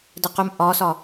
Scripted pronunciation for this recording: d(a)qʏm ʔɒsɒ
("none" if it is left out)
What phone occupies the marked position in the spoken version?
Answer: ə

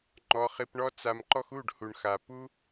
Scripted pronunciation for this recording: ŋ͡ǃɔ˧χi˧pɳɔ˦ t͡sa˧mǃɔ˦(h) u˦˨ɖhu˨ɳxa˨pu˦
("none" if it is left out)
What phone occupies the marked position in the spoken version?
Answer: x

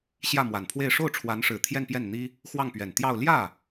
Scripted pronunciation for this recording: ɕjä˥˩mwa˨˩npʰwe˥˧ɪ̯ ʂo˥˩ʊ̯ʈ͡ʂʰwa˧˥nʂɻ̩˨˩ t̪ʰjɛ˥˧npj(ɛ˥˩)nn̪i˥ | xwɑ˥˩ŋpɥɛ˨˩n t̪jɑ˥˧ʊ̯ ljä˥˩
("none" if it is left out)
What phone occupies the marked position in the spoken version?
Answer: ɛ˥˩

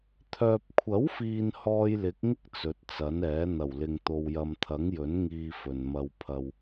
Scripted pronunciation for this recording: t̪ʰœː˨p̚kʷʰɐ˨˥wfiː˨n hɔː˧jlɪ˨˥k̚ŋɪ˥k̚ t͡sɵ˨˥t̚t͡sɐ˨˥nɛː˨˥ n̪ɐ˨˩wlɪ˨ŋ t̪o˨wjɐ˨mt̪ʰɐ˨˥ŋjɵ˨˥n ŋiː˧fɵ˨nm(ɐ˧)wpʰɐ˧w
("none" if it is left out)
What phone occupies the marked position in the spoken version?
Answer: ɐ˧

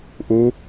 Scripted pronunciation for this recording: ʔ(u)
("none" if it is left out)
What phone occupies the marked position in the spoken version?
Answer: u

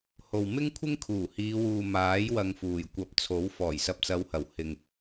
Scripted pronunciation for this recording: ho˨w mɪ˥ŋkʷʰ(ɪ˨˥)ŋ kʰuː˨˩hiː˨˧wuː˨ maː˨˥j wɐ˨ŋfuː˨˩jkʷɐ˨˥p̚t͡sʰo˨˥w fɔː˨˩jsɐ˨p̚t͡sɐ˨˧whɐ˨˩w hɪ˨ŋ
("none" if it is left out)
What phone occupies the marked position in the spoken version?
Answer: ɪ˥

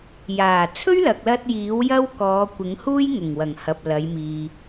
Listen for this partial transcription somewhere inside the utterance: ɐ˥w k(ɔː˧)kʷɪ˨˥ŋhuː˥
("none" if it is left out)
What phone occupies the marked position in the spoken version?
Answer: ɔː˨˧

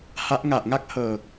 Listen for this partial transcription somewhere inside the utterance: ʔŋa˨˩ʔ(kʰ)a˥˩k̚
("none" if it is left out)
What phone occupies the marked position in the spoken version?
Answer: ŋ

